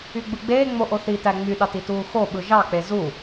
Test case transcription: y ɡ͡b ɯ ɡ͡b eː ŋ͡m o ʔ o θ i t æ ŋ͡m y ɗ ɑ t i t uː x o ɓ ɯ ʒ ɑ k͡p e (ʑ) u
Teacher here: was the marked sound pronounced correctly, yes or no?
no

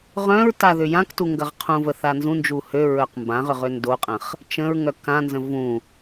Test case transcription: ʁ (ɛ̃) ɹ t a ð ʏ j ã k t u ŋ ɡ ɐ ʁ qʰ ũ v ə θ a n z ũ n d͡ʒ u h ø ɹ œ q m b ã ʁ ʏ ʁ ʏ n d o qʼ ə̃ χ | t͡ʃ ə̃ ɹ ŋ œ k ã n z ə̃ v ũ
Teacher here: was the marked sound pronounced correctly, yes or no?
no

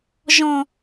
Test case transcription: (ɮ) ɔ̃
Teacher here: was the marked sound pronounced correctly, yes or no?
no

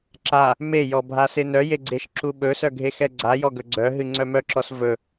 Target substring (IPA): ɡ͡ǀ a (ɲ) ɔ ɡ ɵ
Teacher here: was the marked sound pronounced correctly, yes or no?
no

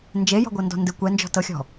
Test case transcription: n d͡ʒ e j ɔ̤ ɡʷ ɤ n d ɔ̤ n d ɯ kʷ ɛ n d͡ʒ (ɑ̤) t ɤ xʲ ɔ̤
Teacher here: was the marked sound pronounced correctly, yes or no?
no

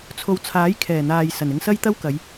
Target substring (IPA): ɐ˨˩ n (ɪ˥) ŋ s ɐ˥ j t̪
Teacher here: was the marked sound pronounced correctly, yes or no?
no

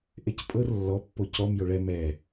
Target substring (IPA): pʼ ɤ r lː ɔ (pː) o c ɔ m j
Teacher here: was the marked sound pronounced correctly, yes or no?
yes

